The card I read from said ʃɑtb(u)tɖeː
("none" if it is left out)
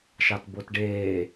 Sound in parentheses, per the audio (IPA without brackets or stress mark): o